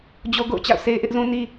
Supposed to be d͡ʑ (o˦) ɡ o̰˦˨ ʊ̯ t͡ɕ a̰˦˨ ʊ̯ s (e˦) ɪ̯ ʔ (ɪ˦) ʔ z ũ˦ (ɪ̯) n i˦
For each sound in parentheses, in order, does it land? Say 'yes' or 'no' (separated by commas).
yes, yes, yes, no